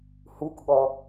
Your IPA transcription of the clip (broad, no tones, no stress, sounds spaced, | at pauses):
h u k ɠ ɔ